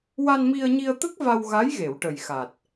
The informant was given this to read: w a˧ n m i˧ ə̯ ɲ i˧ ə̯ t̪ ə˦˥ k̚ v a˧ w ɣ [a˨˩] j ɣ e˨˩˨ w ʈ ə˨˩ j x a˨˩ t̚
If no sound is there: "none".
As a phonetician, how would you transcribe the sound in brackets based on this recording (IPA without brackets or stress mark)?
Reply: a˧˥